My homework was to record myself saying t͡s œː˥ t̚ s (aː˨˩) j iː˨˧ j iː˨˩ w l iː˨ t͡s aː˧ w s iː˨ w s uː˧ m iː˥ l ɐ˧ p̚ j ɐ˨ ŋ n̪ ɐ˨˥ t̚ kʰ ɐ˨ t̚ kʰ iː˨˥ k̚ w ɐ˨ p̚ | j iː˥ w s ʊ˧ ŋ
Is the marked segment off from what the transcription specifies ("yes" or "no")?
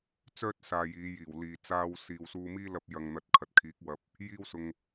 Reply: yes